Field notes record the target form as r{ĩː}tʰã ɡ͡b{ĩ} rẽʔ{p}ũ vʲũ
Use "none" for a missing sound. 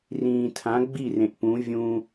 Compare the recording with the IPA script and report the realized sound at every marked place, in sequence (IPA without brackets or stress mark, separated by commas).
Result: ĩː, i, p